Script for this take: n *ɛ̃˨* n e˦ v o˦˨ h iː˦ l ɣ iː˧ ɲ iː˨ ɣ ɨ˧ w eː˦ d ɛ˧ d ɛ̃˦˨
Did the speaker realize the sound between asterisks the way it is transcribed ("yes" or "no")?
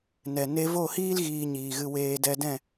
no